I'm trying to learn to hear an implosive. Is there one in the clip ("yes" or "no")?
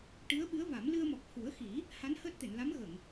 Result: yes